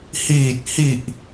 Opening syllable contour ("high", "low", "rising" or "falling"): low